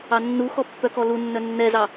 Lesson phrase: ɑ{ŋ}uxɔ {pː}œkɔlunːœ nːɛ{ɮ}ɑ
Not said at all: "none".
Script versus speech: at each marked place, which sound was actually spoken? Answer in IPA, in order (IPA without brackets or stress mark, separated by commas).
nː, pː, z